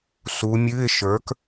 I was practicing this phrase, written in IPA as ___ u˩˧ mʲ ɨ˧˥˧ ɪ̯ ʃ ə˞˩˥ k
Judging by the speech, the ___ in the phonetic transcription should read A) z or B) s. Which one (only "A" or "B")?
B